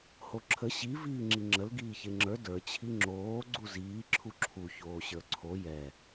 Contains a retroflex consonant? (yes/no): no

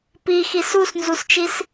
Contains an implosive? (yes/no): no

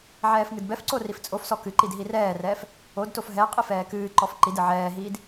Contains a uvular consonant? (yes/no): yes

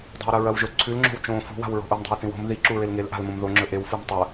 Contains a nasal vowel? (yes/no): yes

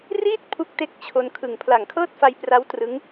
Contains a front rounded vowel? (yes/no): no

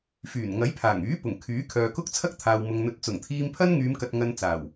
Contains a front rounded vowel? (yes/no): yes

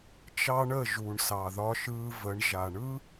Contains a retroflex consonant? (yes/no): yes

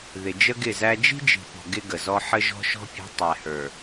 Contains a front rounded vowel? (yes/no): no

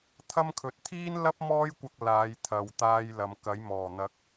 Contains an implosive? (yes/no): no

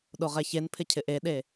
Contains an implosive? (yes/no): yes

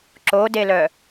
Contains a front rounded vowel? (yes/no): yes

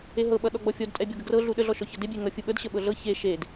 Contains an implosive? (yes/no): yes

